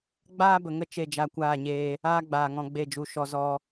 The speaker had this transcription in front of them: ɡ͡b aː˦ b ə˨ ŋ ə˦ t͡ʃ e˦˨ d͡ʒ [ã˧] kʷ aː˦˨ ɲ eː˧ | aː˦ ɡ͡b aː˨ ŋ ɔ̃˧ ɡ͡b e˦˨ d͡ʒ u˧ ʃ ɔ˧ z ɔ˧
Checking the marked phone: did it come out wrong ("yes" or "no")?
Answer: yes